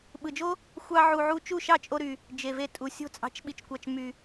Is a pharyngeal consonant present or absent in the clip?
present